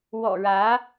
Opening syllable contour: low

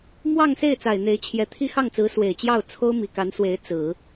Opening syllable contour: falling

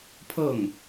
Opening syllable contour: falling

